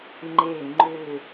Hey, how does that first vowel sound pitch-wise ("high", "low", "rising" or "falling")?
low